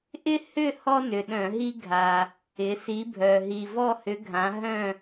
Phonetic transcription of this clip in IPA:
ʔ ɪ˦ h ʏ˦˨ h ɔ˦ n ʏ˨˩ ɗ œ̃˧˩˧ ɦ i˦ ɡʱ a˦ | ɪ˨˦ s i˨˦ bʱ œ˨˩ ɦ i˨˩ v ɔ˦˨ h ʏ˨˦ ɡʱ ã˨˦ ɦ œ̃˦˨

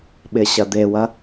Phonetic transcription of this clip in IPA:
ɓ ɪ ɕ ɐ d̪ e w ɐ

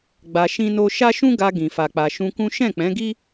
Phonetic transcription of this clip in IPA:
ɡ͡b a˧ ʃ ĩ˦ n o˦ ʃ a˦ ʃ ũ˦ ɡ a˧ ɡ ĩ˨ f a˨ k͡p a˨ ʃ ũ˧ k ũ˦ ʃ ɛ̃˦˨ k͡p ɛ̃˨˦ ɡ i˦

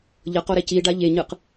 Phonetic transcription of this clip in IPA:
ʎ ʌ q o ɾ ɛ c i ɖ a ʎ e ɲ ɯ q

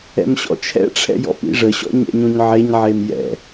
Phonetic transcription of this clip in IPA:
ɛ̰ m ɕ ɔ̰ t͡ʃʰ ɛ̰ ʈ͡ʂʰ ɛ̰ j ɔ̰ p ḭ ʐ ə ɕ ɔ̰ ɲ ɛ̰ ɲ õ ɲ ʕ e ɲ ʕ e m j ɛ̰

